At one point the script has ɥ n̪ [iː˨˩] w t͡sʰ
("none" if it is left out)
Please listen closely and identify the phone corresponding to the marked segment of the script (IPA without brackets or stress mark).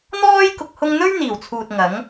iː˨˩